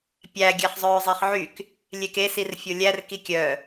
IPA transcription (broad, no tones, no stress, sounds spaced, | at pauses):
pʲ æ ɡʲ æ χ zˤ œː zˤ e χ ʕ y k | lʲ e k e s i r fʲ o lʲ æ r k i kʲ œ